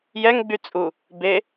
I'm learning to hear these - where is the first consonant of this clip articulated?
palate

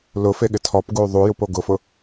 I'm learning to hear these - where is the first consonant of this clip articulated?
tongue tip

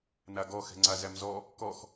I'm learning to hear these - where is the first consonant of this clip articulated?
tongue tip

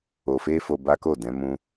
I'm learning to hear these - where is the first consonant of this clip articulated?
lips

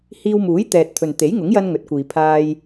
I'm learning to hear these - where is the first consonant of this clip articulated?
throat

